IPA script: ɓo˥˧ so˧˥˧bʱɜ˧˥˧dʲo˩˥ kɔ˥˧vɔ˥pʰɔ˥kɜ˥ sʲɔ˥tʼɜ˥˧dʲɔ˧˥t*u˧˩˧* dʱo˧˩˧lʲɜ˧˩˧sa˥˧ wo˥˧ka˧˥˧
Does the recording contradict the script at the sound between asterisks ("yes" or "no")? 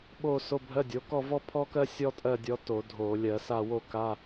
yes